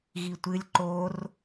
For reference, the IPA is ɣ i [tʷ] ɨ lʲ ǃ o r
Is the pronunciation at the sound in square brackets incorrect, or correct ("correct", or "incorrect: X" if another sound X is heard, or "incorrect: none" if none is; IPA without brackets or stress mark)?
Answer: correct